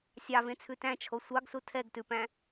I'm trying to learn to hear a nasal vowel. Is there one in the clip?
yes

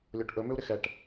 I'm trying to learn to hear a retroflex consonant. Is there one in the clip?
yes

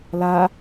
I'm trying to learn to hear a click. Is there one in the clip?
no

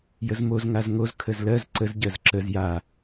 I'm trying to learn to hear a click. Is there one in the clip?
yes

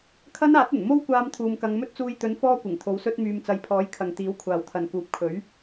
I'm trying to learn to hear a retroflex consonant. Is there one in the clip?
no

